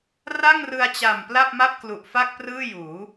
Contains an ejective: no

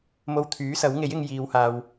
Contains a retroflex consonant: no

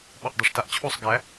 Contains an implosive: yes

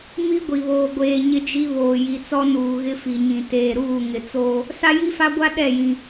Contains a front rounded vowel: no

